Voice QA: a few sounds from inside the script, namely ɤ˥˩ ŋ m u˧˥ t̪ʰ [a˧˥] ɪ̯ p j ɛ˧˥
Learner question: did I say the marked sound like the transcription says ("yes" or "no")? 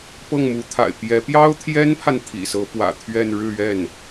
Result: no